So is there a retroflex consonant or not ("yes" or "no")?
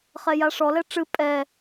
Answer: yes